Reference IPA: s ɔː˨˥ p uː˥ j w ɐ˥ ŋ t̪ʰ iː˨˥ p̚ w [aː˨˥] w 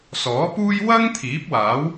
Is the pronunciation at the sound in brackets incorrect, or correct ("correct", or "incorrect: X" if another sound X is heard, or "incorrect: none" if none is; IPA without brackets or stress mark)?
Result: correct